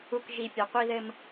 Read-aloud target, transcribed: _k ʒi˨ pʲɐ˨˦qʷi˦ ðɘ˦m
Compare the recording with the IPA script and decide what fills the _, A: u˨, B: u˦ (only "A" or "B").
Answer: A